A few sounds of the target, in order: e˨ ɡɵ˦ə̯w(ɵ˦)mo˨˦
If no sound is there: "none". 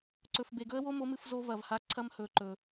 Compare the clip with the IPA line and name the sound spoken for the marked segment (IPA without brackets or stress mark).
o˦